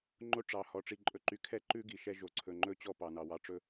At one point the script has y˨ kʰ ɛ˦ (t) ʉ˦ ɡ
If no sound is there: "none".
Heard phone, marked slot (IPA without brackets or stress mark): ǃ